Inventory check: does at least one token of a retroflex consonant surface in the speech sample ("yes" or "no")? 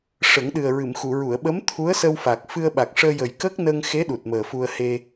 yes